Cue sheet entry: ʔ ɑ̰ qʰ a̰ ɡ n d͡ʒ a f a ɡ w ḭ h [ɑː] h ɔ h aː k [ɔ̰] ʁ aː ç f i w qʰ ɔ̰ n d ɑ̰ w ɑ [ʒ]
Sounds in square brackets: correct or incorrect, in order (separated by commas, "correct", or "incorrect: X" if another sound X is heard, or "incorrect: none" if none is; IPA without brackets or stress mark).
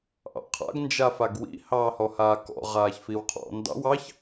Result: correct, correct, incorrect: ç